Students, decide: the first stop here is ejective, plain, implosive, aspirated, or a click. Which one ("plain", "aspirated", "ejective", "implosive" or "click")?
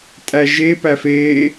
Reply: ejective